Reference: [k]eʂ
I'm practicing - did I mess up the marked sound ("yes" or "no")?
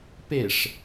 yes